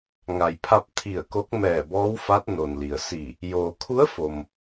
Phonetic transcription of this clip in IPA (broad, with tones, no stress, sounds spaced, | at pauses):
ŋ a˩ j pʰ a˧ p̚ t̪ʰ i˧˩ ə̯ k o˧˥ k̚ m ɛː˧˩ b ɔː˧˥ w f a˧˥ t̚ n o˩ n l i˩ ə̯ s i˧˩ | j oː˩ kʰ u˧˥ ə̯ f o˩ m